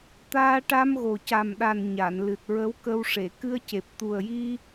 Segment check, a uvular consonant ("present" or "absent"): absent